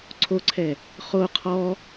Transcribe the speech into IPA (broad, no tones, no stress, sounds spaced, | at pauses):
ǀʰ o ǀʰ ɛ | χ o qʰ ɔ